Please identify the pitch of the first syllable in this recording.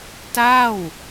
falling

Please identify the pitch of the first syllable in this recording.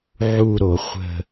falling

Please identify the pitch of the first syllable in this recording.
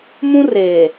high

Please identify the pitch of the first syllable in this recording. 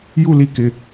falling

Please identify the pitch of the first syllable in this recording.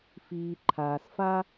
low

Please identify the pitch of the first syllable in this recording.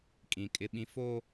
low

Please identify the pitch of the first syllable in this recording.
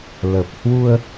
low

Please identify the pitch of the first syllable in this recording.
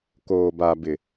low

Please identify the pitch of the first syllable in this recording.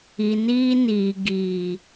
low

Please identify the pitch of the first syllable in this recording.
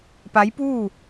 rising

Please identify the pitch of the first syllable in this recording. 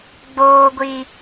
high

